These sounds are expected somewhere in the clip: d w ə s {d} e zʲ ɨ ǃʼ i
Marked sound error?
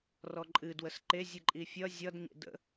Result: yes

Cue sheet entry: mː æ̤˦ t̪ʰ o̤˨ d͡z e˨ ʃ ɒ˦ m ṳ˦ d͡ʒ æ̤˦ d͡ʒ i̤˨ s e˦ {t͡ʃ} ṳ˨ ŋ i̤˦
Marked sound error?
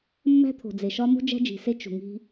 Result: no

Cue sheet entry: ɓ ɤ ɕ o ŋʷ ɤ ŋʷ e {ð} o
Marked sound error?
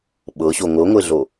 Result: yes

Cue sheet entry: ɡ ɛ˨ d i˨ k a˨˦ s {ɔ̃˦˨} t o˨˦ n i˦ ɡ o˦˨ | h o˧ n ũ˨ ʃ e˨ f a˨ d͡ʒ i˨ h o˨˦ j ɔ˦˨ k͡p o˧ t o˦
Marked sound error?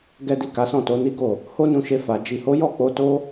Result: no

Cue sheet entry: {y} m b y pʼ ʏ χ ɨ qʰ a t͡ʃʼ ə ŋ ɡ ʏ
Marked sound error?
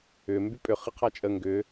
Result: yes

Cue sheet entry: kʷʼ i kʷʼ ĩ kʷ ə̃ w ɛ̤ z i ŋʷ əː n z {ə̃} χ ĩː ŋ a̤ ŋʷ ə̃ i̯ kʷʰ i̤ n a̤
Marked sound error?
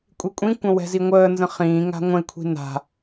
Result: no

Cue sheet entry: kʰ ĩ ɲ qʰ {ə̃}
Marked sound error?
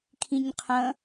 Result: no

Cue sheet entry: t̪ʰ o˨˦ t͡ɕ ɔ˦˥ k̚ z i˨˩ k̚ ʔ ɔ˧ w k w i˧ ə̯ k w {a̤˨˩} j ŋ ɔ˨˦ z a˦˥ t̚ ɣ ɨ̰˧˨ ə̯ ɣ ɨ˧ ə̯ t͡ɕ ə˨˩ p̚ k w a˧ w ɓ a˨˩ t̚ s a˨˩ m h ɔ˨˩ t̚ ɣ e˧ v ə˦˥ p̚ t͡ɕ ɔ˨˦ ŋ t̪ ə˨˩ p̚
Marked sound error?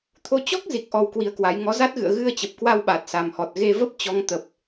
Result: yes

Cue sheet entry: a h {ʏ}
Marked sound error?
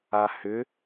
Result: no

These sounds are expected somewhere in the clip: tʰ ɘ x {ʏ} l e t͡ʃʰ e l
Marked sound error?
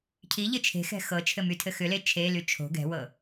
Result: no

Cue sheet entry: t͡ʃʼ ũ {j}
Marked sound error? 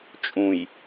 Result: no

